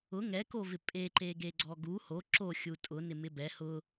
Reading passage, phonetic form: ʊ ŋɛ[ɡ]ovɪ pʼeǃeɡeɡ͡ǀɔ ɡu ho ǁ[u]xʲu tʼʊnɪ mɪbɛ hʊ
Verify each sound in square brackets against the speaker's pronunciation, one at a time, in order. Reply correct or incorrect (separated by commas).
incorrect, incorrect